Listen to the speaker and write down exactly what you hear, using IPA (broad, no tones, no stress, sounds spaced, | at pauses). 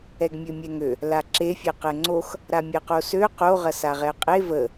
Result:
ɛ ɡ mʲ ø mʲ ɛ ŋ ø | l a ǁ e fʲ ɛ q ɛ ŋ͡ǀ o x | ɾ a mʲ ɛ q o s ø q o ʁ ɐ s a ʁ ɛ qʼ e v ə